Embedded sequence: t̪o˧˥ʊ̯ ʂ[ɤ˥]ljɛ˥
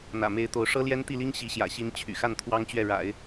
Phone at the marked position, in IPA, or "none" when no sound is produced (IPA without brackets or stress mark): ɤ˥